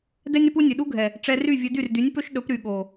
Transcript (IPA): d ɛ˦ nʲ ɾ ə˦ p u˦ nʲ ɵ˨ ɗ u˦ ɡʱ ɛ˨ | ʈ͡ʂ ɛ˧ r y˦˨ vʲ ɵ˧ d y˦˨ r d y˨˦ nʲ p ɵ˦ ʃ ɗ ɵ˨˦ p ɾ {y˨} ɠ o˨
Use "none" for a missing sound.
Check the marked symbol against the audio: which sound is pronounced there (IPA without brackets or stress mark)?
y˨